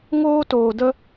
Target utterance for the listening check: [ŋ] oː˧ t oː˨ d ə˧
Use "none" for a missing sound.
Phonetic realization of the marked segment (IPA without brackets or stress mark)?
ŋ